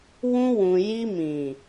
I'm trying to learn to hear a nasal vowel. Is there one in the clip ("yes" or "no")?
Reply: yes